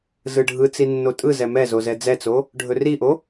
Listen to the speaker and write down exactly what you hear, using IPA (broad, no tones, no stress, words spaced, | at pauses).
zɯɖʱɯt͡si nːotʼɯzɛ mɛ zozɛd͡zɛt͡so | ɖʱɵriʔo